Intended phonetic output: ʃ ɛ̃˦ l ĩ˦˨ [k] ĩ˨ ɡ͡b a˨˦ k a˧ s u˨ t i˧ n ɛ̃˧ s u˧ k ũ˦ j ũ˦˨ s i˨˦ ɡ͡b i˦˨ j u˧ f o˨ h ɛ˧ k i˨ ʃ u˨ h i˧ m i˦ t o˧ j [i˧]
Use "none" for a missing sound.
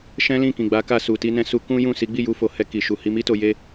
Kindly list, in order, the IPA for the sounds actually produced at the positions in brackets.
k, e˧

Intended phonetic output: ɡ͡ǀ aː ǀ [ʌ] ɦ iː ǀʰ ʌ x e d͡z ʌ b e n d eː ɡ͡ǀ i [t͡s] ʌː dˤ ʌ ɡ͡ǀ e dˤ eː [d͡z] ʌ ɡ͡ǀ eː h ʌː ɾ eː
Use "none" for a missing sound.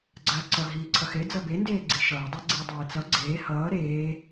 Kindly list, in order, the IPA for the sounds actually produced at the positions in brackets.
ʌ, ʃ, t͡s

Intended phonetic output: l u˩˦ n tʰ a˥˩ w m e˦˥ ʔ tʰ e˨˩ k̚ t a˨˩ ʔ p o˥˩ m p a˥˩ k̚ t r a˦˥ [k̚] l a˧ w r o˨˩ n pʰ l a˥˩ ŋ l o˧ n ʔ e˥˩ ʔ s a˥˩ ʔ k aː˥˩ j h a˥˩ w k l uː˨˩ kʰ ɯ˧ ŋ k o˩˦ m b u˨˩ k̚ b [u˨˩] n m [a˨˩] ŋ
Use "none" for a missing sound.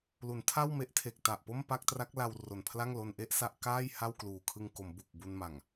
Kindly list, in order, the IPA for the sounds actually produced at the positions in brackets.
k̚, u˧, a˨˩

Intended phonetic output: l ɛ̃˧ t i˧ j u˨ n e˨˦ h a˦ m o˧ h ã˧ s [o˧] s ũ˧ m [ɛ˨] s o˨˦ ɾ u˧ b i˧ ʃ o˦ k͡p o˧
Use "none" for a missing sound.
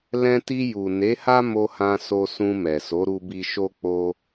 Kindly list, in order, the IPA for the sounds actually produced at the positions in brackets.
o˧, ɛ˨

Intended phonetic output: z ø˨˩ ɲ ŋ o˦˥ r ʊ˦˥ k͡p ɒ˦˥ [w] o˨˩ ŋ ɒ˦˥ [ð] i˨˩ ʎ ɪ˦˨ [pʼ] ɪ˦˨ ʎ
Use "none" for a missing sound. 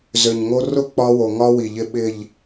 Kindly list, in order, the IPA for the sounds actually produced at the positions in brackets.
w, w, ɓ

